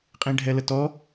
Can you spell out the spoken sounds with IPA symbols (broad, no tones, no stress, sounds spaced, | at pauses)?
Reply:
qʼ ĩ ɖʱ ɛ l ə t ɔ